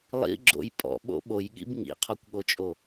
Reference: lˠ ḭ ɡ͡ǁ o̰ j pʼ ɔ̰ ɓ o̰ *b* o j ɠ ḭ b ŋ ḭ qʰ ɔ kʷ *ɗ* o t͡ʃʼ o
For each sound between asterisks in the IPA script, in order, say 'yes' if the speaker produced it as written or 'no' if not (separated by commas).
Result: no, no